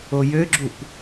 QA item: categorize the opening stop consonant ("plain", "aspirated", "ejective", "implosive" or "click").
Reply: click